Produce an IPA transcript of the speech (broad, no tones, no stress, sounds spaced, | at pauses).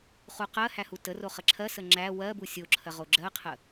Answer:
χ u q ɜ h æ h u t ə r o χ ə ǁʰ ɜ s ə ŋ͡ǁ æ w ɜ b u sʲ o ǁʰ ɜ ʁ o ɡ͡ǁ ɜ qʰ ə